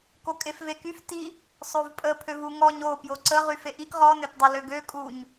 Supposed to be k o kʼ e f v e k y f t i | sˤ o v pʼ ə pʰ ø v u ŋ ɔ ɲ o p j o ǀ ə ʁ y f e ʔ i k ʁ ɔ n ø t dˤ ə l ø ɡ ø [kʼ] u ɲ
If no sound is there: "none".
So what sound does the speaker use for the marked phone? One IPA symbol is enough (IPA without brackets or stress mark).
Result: kʼ